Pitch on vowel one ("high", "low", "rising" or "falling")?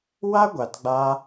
high